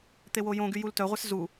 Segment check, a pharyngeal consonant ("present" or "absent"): absent